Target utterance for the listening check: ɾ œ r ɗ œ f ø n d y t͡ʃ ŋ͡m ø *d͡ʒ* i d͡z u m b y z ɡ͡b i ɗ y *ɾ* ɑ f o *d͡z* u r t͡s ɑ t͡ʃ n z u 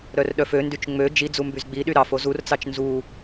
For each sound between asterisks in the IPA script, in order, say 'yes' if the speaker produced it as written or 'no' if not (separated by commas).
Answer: yes, yes, no